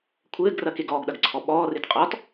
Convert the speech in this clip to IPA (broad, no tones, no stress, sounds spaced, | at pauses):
kʷʰ ɘː ɡ r ɐ k e ɡ ɔː ɡ ɗ ɐ ɡ ǀʰ ɔ ɓ ɔː r e t qʼ ɔː t